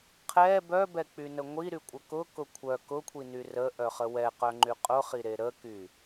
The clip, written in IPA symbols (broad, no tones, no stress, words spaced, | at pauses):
qʰɛ bœbɛk͡pynə ŋʷiɾykʷʼə kʊkʊ kʷʰœ kʊkʷʰiny rəʔœχə wɛqœŋ͡ǃy qʼʊχiɾe ɾəky